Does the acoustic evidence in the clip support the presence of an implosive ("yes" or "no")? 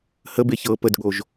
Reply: yes